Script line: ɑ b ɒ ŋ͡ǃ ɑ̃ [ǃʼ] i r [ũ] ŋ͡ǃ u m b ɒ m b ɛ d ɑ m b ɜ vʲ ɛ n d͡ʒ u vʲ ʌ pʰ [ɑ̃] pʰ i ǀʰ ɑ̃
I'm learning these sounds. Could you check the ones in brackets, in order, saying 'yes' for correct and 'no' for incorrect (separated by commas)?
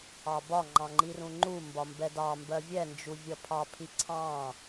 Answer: no, yes, no